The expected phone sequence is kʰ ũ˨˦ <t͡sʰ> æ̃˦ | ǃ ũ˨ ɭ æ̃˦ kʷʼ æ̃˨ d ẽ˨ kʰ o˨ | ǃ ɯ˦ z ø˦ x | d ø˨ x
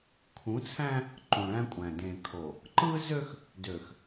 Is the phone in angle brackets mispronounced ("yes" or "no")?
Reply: no